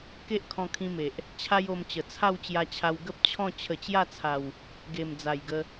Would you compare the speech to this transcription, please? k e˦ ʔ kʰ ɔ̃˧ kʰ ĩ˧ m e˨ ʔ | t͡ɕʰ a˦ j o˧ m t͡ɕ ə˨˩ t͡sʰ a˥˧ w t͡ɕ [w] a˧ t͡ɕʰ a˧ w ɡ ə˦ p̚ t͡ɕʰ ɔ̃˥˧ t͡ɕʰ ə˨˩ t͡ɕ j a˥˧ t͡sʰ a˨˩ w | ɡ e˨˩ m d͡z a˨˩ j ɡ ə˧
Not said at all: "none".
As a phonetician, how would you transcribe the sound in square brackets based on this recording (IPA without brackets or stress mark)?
j